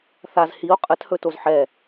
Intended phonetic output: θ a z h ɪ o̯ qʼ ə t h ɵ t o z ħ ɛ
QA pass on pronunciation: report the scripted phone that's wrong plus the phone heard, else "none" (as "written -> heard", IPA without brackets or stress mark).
ɪ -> i